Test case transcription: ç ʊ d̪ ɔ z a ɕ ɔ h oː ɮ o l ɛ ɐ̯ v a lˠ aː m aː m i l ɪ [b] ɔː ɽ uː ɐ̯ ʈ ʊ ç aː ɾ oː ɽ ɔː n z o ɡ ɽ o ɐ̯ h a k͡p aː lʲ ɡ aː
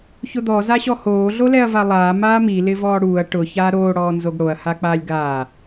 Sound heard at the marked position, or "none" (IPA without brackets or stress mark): v